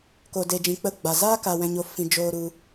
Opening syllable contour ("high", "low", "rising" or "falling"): low